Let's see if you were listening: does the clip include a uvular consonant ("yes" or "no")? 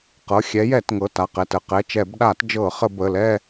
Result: yes